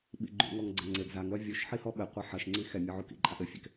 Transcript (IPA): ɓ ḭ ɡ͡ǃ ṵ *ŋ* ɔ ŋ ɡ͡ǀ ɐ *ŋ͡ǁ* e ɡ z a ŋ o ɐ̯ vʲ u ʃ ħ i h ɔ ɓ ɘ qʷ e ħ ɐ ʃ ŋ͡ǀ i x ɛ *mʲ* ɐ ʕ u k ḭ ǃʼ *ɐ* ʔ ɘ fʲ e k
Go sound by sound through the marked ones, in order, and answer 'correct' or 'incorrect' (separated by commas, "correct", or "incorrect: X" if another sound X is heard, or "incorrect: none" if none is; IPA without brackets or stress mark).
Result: correct, incorrect: ŋ͡ǀ, correct, incorrect: a